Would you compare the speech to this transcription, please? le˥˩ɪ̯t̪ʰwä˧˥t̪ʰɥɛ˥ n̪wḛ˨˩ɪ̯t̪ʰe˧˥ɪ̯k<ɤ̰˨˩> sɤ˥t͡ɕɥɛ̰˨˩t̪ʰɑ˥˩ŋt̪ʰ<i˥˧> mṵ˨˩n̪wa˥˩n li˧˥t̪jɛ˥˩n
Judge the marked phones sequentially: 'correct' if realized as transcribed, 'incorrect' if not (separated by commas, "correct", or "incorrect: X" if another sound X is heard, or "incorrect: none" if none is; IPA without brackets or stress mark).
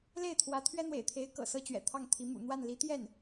correct, incorrect: i˧˥